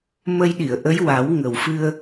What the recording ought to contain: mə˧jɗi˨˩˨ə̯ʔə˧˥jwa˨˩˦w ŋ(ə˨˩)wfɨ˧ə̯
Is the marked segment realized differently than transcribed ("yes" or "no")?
no